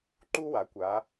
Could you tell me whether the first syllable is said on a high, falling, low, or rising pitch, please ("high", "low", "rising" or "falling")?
high